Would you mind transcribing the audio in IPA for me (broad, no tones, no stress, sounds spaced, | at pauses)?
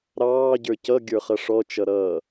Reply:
ɾ ɑː ɟ ə˞ c ʌ ɡʲ ə˞ χ ʌ ʂ ɔ t͡ʃ ʌ ɾ ʌː